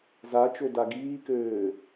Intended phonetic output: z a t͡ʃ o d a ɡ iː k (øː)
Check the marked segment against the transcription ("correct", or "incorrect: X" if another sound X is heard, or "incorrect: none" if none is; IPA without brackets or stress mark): correct